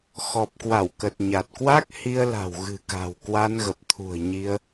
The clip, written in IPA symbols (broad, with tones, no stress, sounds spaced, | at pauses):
x ɔ˨˩ p̚ k w a˧˩ w k ə˨˩ t̚ ɲ a˨˩ t̚ k w a˦˥ k̚ h i˧ ə̯ l a̤˨˩ w ɣ ɨ̤˨˩ k a̤˨˩ w k w a˧ n ɣ ə˨˩ p̚ t̪ʰ ṳ˨˩ ə̯ ɲ i˧ ə̯